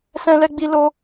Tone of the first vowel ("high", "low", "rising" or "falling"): high